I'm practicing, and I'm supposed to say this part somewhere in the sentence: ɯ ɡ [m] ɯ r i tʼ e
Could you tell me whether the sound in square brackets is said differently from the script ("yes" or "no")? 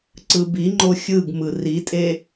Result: no